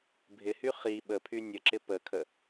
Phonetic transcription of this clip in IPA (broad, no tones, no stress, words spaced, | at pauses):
bʱɪhy χi ɓəpʰy nʲəǁɪ pəkʰə